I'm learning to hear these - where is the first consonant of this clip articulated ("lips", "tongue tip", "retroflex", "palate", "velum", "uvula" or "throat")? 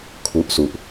velum